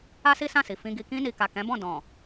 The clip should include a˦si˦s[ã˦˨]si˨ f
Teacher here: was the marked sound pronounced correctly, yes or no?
yes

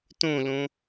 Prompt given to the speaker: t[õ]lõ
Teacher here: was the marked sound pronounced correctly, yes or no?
yes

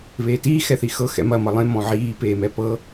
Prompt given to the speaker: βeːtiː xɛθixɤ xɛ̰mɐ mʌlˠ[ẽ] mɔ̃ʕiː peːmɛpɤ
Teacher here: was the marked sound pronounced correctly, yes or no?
yes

